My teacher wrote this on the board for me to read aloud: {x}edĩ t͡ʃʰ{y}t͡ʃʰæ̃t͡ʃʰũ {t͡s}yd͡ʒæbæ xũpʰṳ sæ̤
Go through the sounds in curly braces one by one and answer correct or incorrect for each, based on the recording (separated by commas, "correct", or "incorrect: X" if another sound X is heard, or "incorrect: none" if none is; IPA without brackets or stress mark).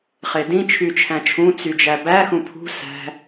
incorrect: χ, correct, correct